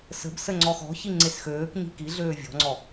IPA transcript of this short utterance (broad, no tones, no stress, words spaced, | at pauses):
sə̤bsə ŋ͡ǀɔxɔ̤çi ŋ͡ǀesxøːkɲi̤ kiɮøː vʲɔ̤ŋ͡ǀɔ